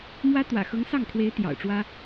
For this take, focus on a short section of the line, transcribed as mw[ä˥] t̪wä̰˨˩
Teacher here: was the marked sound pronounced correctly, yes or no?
yes